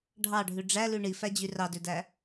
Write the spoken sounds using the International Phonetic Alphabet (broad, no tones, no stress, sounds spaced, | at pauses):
ɖʱ ɑ ɖʱ ʉ ɖ͡ʐ æ l ʉ ɳ i f æ d͡ʑ y r ɑ d ø d æ